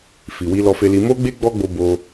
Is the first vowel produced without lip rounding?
yes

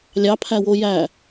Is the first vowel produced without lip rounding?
yes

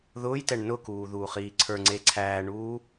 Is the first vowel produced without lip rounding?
no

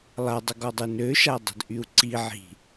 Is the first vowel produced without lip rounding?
yes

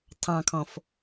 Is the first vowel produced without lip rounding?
yes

